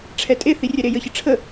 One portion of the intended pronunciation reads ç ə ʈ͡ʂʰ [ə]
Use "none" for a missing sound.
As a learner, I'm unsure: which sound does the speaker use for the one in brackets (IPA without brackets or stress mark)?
ə